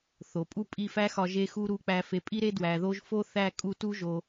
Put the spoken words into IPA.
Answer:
θ o˨ pʼ u˦ pʼ i˦˨ f æ˦ x ɒ˧ ʒ e˧ x u˧ ɾ u˧ k͡p æ˧ f e˧ pʼ i˦ ɾ e˦ d w æ˨ ð o˧ ʒ f o˦ θ æ˦˨ kʼ u˧ t u˦ ʒ o˧

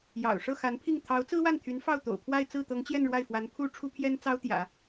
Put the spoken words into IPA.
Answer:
j ɑ̰˨˩ ʊ̯ ʂ ɤ˥˩ x a˧˥ n pʰ i˥˩ ŋ t̪ʰ ɑ˧˥ ʊ̯ t͡s ɹ̩˥ w a˥˩ n t̪ʰ y˧˥ n f ɑ˥˩ ʊ̯ t̪ o̰˨˩ ʊ̯ pʰ w a˥˧ ɪ̯ t͡s ɹ̩˥˩ t̪ ɤ˧˥ ŋ t͡ɕ j ɛ˥˧ n ɻ w a˥˩ ɪ̯ f w a˧˥ n pʰ u˥ ʈ͡ʂʰ u˥ pʰ j ɛ˥ n t͡s ɑ˥ ʊ̯ t̪ j ä̰˨˩˦

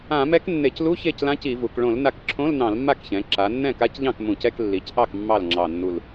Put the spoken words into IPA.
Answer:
ã˧˩˧ m ɛ˧˥ k nː e˧˩˧ c l u˧˥˧ ç e˥˩ c l ã˧˥ c i˧˩˧ v u˩˧ k ɭ õ˧˩˧ l n a˧˩ k ǁʰ õ˧˥˧ l n ɑ̃˧˩˧ l mː a˥˩ k ç ɛ̃˩˧ ǁ a˩˧ nː ɛ̃˥˩ k a˧˥ c ʎ ɑ̃˥˩ k m ũ˧˩˧ c ɛ˧˥˧ k lː i˩˧ c ʔ ɑ˥˩ k mː ɑ˥˩ l ŋ͡ǁ ɑ˧˩ nː u˧˩ l

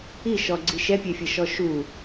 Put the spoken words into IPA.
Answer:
i ʃ ɔ ɡ͡ǀ i ʃ ɛ pʲ ɛ fʲ ʌ ʃ ɔ ʃ u

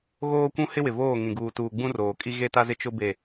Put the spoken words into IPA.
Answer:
ɣ oː˦ kʷ ũ˦ h ɪ˦ w ɪ˨ v oː˦˨ ŋ ĩ˨ ɡ uː˨ t uː˨ ɡ͡b ũ˦ r oː˨ kʼ i˦ ɣ e˦ t a˦ z ɪ˦ t͡ʃ ʊ˦ b e˦˨

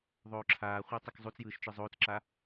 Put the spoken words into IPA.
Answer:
ðˤ oː ǁʰ aː χʷ e tˤ ɯ k zˤ u t͡s j ɯː ʃ t͡ʃ ɯ zˤ oː t͡s ǁ a

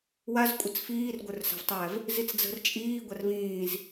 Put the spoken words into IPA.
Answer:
w a z kʷʼ ə t͡s f iː r ɡʷ ə˞ r s a̤ v tˤ æ v | z i t͡s d͡z ə̤ r t͡ʃʼ iː ɡʷ a r v ĩː z

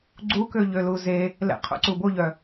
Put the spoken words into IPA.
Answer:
ɡ͡ǀ u k ø ʎ ø l u z e | l ɛ̰ qʰ o̰ ǀ u b o ʎ œ

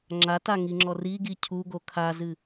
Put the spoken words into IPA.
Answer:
ŋ͡ǁ a t a ŋ i ŋ͡ǁ ɔ r i ɡ i cʰ u ɡ o kʰ a z ɨ

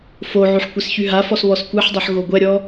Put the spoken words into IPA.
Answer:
f o ʕ y ħ kʷ e s ç y ɦ a f ɔ s β ɔ s kʷ ɛ ħ dˤ ɛ ħ ɣ o ɡʷ ɛ ɾʲ ɔ

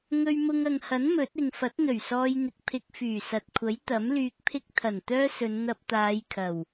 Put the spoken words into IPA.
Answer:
ŋ ɵ˧ ɥ m ʊ˧ ŋ ɐ˨ ŋ h ɐ˨˥ n m ɵ˨˥ t̚ ɪ˨ ŋ f ɐ˨˥ t̚ n̪ ɵ˨˩ ɥ s ɔː˧ j n̪ ɪ˨ k̚ pʰ ɪ˧ k̚ f yː˨˩ s ɐ˨ t̚ kʷʰ ɐ˨˥ j t̪ ɐ˨˥ m l yː˧ k̚ pʰ ɪ˥ k̚ t̪ʰ ɐ˨˩ n t̪ œː˥ s ɵ˨˧ n n̪ ɐ˧ p̚ t̪ aː˨˧ j kʰ ɐ˨˩ w

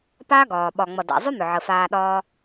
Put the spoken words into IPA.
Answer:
p a˦ ɡ ɒː˨ ɓ ɒ˨ ŋ͡m ʌ˨ d a̰˨ zˤ ʏ˦ m ʏ˨ ʕ ə˨ f aː˧ ɗ ɒː˧

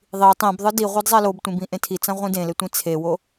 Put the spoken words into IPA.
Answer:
ðˤ i tˤ ẽ b ðˤ ɯ d i ʁʷ e d zˤ ɛ l o b tʷ ĩ b ĩ ʔ ẽ tʰ i t͡s ã ʁʷ ĩ d ẽ l e tʷ ĩ t͡sʰ e w o

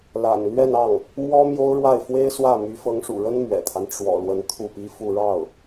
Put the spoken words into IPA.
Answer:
l a̰˨˩ n l ɥ ɛ˥˧ n ɑ˥˩ ŋ | m w ɔ˥ m j o˥ ʊ̯ ɻ w a˥˩ ɪ̯ f w e˥ ɪ̯ s w ä˥˩ m y˧˥ f ɤ˧˥ ŋ ʂ ṵ˨˩ ɻ ə˥ n m ɥ ɛ̰˨˩ t̪ʰ a˦ n ʈ͡ʂ w ɔ̰˨˩ l w ə˧˥ n t̪ʰ u˥˩ p i˥ f u˥˧ ɻ ɑ˥˩ ʊ̯

